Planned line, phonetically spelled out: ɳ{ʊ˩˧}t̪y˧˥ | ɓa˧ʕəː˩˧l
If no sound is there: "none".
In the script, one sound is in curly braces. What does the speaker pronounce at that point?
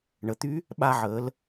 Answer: ə˩˧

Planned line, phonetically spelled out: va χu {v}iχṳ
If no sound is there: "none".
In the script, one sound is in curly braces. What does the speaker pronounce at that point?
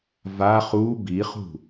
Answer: b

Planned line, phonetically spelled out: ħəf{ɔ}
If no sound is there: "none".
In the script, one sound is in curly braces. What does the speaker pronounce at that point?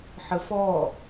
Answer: ɔ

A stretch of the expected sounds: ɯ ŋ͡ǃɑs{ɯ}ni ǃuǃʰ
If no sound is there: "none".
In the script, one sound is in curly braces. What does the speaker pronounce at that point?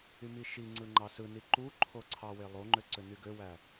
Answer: ɯ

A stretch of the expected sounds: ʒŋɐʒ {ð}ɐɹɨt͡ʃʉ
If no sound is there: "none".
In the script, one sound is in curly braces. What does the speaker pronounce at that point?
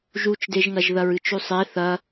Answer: ð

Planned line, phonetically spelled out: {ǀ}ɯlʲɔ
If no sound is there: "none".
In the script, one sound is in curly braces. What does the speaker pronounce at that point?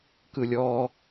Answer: k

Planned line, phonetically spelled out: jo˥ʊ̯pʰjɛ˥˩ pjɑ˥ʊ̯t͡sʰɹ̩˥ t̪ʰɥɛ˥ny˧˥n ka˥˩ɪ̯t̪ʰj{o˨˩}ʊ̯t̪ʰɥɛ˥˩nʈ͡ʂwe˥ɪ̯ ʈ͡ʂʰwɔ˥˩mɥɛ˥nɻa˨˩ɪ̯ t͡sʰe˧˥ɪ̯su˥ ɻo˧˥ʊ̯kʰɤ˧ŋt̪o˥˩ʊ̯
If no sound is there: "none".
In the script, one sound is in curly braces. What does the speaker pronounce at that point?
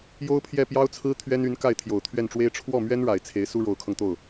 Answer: o˨˩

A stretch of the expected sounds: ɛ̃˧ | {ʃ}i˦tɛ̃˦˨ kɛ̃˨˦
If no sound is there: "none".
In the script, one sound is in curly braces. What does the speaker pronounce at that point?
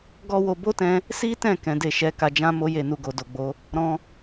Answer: s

